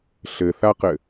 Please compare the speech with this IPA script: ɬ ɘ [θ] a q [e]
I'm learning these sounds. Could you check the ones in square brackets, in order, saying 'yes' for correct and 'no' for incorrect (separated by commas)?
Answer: yes, no